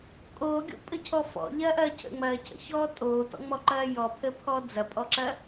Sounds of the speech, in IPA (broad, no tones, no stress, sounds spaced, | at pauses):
kʼ oː ɡʲ o̰ pʼ ə cʰ ɔ f ɔ̰ ʎ ɐː ʔ ɐː cʰ ə̰ ŋ͡m ɐː cʰ ə̰ ç ɔː tʼ oː t ɔ̰ ŋ͡m ɔ ǃ ɐː j ɔ pʰ ə pʰ ɔ d͡z ɐ pʼ ɔ ǁ ɐ